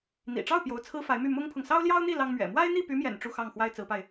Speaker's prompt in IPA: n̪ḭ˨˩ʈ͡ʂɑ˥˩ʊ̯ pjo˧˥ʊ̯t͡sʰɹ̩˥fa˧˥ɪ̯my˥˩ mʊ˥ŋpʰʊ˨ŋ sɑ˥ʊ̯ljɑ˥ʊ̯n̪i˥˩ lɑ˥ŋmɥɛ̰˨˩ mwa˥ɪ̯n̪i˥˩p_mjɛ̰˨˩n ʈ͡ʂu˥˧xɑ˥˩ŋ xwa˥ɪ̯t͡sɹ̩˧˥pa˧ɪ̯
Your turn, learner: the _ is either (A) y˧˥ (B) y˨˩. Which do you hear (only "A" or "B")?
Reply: A